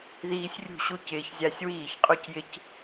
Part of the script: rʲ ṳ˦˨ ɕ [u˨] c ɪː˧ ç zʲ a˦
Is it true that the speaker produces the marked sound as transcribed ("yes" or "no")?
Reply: no